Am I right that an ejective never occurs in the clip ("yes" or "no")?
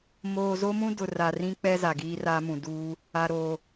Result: yes